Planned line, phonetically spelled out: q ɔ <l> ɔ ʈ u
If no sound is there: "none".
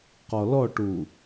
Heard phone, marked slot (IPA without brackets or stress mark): l